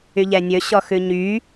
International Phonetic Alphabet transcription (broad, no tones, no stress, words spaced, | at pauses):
yʎɛnʲɵ ɕɔxʉɲy